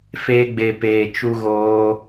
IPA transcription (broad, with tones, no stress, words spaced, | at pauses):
feː˧ɡ͡be˨ peː˨t͡ʃu˧ ɣoː˧